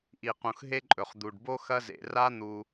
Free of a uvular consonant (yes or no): no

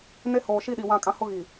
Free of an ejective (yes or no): no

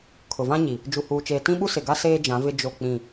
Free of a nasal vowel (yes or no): no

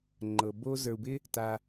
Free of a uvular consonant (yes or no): yes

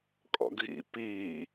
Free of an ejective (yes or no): no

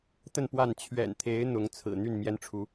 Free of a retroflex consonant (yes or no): no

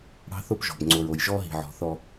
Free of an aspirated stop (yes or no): yes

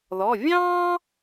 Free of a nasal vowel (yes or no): no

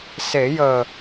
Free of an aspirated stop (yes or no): yes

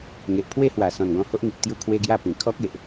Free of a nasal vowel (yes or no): no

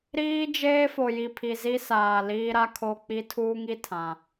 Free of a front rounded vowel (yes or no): yes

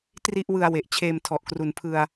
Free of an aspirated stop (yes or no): no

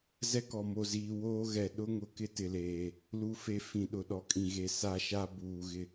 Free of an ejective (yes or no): no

